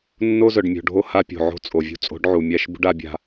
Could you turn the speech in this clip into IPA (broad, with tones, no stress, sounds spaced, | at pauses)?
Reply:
nː o˦ z œ˨ ɖ mʲ o̤˨ ɖʱ o˦ h a˦ pʲ o̤˨ ʕ o̤˦ t͡sʼ o˨ vʲ ṳ˦ t͡sʼ o̤˨˦ ɖ ʕ u˨ mʲ a˦˨ ʃ b ṳ˦ ɖ a˨˦ bʲ a̤˦